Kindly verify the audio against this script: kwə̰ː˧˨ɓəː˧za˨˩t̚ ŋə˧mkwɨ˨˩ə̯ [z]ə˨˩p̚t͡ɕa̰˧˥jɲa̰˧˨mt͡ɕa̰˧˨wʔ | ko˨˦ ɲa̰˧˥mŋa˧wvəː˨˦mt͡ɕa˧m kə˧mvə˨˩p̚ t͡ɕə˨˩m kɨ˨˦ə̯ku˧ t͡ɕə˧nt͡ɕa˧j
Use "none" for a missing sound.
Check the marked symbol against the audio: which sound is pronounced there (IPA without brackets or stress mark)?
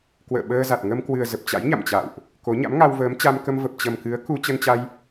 z